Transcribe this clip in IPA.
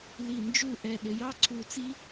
l i˧˩ n d͡ʒ u˥˧ ʔ ɛ˧ ɗ ɪ˩˧ j ɑ˥ ǀʰ u˧˩ t͡s i˥

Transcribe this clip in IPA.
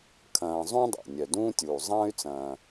kʰ ɐ̃ː˨ zˤ ũ˥ dˤ o̰˩ nʲ œ˩ d ũː˦ tʲ uː˩ zˤ ɐ̃ː˥ y̯ t͡s ɐ̃ː˨

